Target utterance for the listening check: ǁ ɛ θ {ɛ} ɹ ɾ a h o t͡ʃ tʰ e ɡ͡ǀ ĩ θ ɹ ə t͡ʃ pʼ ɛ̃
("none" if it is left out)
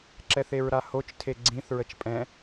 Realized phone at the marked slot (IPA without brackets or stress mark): e